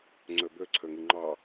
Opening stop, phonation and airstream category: click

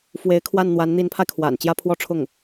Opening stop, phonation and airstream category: aspirated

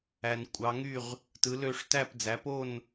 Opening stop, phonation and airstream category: ejective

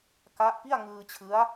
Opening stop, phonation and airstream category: plain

